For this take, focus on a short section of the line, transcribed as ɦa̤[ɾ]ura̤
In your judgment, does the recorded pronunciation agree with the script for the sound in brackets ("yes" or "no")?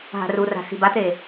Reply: no